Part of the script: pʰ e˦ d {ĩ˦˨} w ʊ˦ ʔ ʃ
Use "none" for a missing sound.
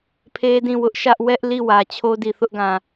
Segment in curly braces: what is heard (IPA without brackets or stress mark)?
ĩ˦˨